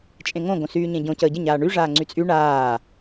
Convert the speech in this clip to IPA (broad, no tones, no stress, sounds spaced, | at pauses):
t͡ʃʼ ẽ ŋ õ ɡ õ s yː ɲ ẽ ɟ õ c əː ɟ ə ɲ aː ɳ y ʐ aː ŋ͡ǀ y t͡sʼ y ɳ aː